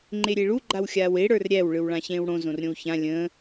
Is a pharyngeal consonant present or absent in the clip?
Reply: absent